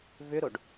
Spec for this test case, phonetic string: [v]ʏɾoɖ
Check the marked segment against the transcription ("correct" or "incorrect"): correct